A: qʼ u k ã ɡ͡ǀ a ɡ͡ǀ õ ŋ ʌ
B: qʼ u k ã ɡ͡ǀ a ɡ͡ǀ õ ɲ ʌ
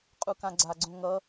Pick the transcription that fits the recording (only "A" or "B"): A